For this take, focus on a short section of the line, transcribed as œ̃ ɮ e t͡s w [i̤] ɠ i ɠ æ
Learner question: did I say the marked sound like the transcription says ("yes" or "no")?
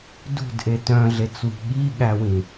yes